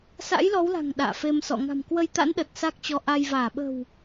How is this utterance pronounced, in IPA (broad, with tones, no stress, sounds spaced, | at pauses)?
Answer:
s a̰˧˥ j l ɔ˨˦ w l a̤˨˩ ŋ ɗ a̰ː˧˨ f e˧ m s ɔ̰˧˨ ŋ a̤˨˩ m k w ə˧ j t̪ a̰˧˥ n ɗ ə˨˩ t̚ s a˦˥ k̚ t͡ɕ ɔ˨˦ ʔ a˧ j v aː˧˩ ɓ ə̤˨˩ w